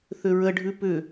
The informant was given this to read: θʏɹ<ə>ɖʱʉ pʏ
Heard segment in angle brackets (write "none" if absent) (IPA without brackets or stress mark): ə